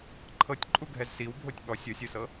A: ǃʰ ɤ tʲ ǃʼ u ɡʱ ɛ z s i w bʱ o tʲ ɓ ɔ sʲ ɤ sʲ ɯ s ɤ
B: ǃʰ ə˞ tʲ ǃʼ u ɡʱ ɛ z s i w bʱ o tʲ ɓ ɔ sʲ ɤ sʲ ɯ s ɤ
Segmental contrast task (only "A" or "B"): A